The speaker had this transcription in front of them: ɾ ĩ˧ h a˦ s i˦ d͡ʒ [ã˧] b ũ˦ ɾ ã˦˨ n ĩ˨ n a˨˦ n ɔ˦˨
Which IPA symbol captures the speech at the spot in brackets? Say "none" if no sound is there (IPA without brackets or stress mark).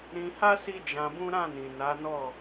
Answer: ã˧